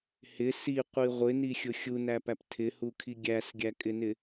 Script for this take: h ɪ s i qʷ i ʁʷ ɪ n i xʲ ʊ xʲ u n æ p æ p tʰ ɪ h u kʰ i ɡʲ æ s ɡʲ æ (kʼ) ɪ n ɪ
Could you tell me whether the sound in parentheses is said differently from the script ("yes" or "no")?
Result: no